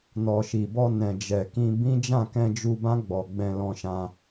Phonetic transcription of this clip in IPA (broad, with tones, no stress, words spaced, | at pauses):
nɔ˨ʃi˨bɔ˧ nɛ̃˨d͡ʒɛ˨kĩ˧ bĩ˦ d͡ʒã˦˨ kɛ̃˧d͡ʒu˧bã˦ ɡ͡bɔ˧ ɡ͡bɛ̃˧ lɔ̃˧ʃã˧